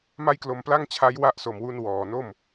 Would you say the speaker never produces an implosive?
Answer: yes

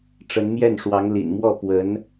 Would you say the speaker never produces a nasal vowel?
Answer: yes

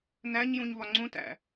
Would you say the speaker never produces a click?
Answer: no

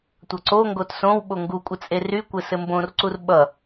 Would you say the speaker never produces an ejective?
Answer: no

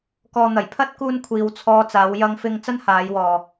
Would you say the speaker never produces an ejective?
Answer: yes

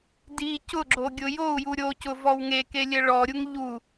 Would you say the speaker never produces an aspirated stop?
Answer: yes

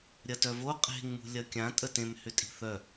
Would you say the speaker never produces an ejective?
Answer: no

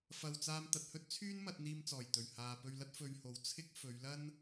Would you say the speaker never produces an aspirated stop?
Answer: no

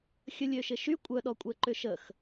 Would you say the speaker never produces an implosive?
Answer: no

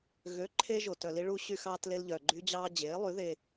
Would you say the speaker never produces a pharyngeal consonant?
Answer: yes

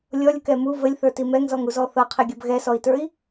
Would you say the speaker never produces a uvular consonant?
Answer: no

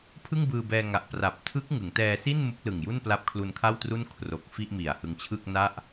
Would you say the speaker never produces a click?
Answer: yes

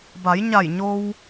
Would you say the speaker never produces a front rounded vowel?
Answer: yes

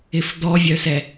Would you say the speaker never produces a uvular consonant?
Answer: yes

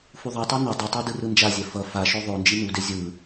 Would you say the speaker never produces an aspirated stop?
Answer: yes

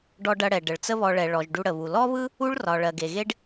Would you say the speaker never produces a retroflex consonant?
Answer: no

